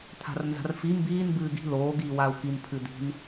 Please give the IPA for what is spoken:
t̪ʰa̤rnza̤rfi mbiːn bɨːɡi̤ loː ɡiːwau̯kin pʰɨd̪i̤n

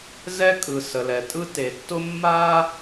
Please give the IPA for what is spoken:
zɛ˥kʼɯ˩ sə˩lɛ˩tʼɯ˥ te˩tːʊ˥ mːa˥

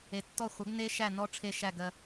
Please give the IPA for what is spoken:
e˨tːɔ˦˨χʷɐ˨˥ɡ ne˦˥ʃæ˦˨ nɔ˦˥ʈ͡ʂʰe˦˨ʃæ˦˨ ɡɜ˨

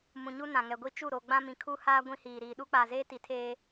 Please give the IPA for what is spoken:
mũ˨ɲu˦ nã˨ŋɛ˨ɡʷi˦ t͡ʃu˦˨ɾo˨ ɡ͡bã˦mĩ˨ kʰu˦haː˦ ɡʷĩ˦hiː˨ɾiː˨ ɗu˦k͡paː˨zeː˦ ti˨tʰeː˨

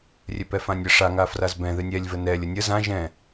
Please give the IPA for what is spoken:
rʲɛpɛfãnʲə ʂaŋafraz bɛ̃ ðɨnʲɛlʲvə nɛlʲ ənʲə zã ʒɛ̃

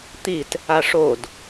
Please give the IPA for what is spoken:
t̪it | aʂod

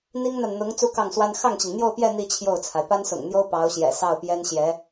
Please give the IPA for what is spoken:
n̪i˥ŋn̪a˨nn̪ʊ˧˥ŋ t͡su˥kɑ˥˩ŋswa˥n xɑ˥˩ŋt͡ɕi˩ŋn̪jo˥˧ʊ̯pjɛ˥˧ n̪i˥˧ t͡ɕʰjo˥˩ʊ̯t͡sʰa˩ɪ̯ pa˥nsʊ̰˨˩ŋn̪jo˥ʊ̯ pɑ˧˥ʊ̯ɕjɛ̰˨˩ sɑ˥˩ʊ̯pjɛ˥nɕjɛ˧˥

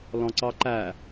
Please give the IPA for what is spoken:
lɔ̃ǀɑǃæ

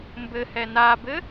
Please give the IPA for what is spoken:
mbɘhɛ nabɘ

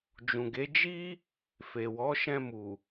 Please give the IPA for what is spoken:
d͡ʒũ˨ɡe˨˦ d͡ʒi˦ | fe˨wɔ˨˦ ʃɛ̃˧mu˨

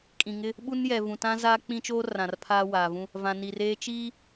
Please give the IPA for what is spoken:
kʼĩ˨ŋɪ˦ | ɓu˦njɛ˨ vũ˨tã˦zaː˦ k͡pĩ˦t͡ʃoː˦ rã˨rpʰaː˦waː˨vũ˦ | vã˨ni˨reː˦ t͡ʃiː˦

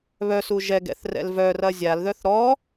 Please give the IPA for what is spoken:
βœsu ʒɛɡɛ̰θ rɛ̰lvœrɐ zʲalðœθ ɾɔ

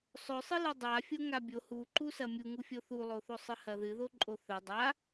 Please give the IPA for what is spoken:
sˤɵsˤɨ lɨdˤa fʲoŋabʲo huǃusɐ mʲuŋufʲo θulˠoθo sˤɨhɐðɨðo ǃʼoθɵ dˤa

